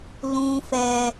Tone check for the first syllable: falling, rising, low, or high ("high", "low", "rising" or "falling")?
high